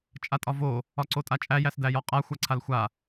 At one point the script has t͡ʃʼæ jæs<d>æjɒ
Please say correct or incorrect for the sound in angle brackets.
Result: correct